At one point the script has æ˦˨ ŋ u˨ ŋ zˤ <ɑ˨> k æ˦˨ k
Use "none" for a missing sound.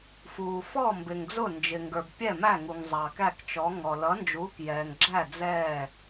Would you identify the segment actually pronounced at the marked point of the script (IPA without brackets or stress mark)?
ɑ˨